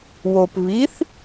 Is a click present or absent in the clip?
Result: absent